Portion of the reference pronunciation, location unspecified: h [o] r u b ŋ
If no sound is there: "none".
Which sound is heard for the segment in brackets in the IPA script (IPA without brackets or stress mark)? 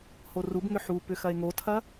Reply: o